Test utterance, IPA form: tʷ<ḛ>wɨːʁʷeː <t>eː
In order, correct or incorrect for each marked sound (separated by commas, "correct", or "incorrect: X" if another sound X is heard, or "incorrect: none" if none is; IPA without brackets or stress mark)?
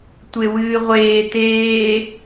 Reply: incorrect: e, correct